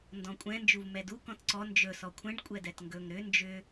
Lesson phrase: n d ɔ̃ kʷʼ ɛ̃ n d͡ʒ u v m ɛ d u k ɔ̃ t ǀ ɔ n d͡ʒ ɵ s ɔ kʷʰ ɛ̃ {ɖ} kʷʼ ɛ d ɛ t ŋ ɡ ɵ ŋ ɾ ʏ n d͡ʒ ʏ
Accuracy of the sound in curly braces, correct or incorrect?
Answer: correct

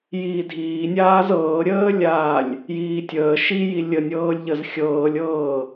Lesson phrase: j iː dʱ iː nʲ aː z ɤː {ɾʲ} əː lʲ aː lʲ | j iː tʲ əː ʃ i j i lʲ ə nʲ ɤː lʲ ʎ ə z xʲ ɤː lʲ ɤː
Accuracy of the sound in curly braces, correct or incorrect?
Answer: correct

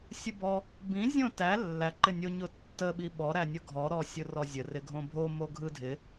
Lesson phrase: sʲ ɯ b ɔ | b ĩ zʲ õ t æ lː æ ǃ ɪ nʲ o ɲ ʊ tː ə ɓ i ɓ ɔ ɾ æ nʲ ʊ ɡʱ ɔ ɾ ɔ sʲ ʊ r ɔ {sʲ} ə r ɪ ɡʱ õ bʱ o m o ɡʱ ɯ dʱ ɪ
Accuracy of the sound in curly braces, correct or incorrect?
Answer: incorrect: zʲ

